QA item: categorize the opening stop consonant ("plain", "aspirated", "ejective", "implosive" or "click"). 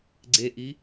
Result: click